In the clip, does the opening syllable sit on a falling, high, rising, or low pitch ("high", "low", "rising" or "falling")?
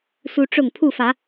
high